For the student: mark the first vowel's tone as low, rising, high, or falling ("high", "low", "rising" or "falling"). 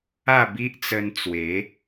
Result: falling